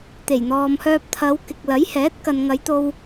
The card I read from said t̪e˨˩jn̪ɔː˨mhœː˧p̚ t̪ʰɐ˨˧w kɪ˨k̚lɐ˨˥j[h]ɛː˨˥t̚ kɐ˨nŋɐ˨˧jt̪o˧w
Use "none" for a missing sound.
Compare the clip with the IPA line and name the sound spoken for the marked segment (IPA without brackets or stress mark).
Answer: h